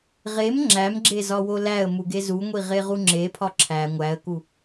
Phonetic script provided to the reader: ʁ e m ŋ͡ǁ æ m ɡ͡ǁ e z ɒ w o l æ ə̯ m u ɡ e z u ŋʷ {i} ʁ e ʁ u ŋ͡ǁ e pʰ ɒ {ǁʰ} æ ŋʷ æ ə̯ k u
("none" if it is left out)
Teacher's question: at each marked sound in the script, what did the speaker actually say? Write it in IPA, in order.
i, ǁʰ

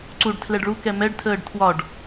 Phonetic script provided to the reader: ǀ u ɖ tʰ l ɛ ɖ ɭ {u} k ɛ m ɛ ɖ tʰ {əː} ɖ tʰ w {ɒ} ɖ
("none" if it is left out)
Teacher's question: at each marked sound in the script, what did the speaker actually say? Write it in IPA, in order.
u, əː, ɒ

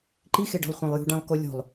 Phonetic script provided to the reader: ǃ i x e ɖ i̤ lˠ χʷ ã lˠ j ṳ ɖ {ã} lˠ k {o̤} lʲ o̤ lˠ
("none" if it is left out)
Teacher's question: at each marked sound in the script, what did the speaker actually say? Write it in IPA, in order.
ã, o

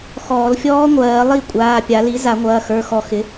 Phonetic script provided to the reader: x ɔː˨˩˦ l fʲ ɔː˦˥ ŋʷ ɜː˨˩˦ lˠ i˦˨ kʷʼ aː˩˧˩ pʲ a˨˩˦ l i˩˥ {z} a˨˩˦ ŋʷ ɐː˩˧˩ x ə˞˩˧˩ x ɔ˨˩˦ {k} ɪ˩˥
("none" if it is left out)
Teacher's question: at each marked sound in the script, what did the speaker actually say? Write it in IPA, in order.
z, x

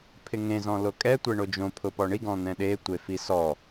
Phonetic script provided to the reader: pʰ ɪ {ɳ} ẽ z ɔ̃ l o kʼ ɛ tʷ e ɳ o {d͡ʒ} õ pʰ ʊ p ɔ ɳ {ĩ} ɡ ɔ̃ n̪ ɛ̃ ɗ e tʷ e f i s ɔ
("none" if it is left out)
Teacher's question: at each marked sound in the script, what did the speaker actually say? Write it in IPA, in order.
ŋ, d͡ʒ, i

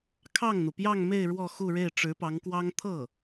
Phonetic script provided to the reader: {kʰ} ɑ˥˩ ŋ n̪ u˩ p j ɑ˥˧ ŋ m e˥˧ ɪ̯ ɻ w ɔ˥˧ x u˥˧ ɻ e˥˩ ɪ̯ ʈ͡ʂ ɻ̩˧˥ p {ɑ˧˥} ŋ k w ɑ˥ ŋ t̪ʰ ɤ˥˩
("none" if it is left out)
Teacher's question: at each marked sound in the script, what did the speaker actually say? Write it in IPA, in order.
kʰ, ɑ˧˥

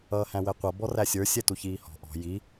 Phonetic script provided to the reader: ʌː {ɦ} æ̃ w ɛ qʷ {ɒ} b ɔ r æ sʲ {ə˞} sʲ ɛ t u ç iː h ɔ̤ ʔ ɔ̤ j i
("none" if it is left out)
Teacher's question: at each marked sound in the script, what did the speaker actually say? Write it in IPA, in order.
h, ʌ, ə˞

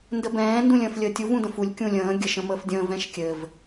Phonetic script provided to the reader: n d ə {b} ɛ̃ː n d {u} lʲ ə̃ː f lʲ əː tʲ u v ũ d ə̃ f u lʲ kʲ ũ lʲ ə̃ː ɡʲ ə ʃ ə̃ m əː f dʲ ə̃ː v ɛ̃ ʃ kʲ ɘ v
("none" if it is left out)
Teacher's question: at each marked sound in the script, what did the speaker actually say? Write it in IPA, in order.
b, ũ

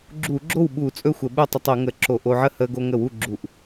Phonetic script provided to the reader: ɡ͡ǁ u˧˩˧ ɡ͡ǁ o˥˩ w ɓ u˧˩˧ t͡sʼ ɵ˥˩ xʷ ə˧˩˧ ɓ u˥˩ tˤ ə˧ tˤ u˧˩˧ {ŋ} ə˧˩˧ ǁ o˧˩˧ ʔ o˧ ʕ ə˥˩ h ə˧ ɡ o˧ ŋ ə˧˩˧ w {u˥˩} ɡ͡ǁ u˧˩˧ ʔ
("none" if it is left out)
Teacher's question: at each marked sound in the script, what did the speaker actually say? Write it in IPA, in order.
ŋ, u˥˩

